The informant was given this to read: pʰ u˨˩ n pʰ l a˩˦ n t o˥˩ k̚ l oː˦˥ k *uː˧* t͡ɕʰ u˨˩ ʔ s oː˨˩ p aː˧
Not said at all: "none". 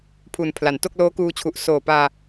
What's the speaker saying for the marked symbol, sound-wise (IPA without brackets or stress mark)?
uː˧